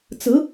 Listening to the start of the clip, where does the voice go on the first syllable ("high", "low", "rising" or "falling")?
rising